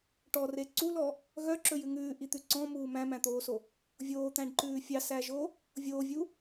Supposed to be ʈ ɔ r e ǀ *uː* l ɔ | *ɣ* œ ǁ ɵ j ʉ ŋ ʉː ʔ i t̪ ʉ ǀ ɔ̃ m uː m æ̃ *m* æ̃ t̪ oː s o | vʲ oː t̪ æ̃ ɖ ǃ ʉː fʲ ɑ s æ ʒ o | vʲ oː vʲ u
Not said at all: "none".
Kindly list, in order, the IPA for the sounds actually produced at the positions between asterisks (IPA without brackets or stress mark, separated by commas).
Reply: u, ɣ, m